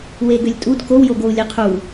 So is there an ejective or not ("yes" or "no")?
yes